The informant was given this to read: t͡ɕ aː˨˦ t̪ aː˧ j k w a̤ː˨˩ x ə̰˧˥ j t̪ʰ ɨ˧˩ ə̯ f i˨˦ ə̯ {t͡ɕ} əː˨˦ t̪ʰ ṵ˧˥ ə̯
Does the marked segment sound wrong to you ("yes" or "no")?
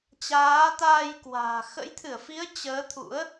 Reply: no